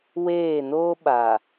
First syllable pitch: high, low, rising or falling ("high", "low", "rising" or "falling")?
falling